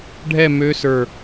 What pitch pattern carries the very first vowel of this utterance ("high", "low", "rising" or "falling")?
falling